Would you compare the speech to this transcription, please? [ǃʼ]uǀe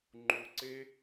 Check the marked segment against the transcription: incorrect: ŋ͡ǃ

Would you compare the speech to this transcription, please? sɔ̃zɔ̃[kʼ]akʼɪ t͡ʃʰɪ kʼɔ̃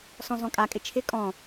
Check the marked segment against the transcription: correct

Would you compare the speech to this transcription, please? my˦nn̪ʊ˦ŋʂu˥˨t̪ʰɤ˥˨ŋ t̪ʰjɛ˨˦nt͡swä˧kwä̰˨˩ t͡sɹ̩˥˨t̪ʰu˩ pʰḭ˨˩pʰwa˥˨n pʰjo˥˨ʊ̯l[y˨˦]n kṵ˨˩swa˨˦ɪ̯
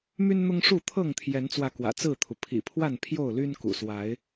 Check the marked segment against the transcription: incorrect: y˦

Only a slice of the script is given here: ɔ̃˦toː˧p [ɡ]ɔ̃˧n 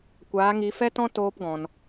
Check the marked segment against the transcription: correct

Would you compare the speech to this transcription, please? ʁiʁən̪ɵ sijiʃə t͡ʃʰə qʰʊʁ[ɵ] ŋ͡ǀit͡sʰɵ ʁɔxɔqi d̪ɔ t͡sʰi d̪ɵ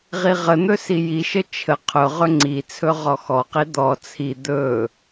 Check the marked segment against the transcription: correct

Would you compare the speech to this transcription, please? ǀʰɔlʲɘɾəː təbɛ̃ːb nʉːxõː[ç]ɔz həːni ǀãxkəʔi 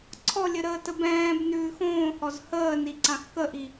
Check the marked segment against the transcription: incorrect: h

